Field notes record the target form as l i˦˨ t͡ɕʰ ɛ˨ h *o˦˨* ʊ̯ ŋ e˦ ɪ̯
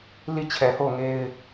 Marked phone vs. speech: correct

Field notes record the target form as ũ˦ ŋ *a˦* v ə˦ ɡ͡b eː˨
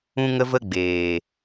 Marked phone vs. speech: incorrect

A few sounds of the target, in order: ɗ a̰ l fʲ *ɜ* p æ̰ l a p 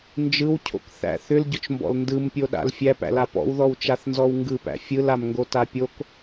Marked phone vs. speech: incorrect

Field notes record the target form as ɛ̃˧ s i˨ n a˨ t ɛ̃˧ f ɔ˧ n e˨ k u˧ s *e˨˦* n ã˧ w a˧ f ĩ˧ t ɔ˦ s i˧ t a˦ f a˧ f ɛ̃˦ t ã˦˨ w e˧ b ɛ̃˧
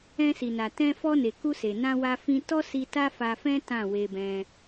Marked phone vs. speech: incorrect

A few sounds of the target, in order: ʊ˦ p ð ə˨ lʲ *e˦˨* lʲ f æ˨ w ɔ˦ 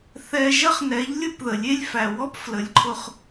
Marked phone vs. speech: incorrect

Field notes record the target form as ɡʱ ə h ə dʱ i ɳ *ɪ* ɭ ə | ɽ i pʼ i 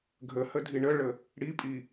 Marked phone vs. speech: incorrect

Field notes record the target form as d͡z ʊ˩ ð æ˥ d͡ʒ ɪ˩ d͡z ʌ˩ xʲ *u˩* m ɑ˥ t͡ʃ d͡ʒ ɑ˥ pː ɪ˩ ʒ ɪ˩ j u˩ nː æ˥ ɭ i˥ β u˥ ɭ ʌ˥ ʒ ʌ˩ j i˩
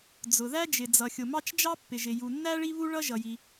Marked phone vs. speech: incorrect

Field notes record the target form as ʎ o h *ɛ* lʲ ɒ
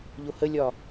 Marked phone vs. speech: incorrect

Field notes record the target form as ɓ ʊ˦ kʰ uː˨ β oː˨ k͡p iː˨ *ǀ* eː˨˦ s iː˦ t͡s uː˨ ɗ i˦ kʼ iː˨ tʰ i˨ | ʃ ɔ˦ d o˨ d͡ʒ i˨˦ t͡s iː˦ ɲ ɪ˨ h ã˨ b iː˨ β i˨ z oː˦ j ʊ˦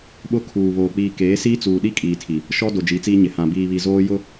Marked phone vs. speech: incorrect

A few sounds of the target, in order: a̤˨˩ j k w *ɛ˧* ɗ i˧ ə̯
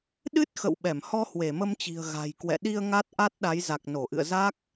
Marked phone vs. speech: incorrect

